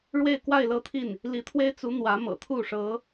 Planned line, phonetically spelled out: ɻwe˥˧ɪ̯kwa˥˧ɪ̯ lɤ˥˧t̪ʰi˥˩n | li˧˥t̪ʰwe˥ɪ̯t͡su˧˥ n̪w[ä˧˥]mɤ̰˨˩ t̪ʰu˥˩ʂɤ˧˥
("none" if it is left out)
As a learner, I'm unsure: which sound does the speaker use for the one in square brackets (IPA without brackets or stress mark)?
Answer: ä˧˥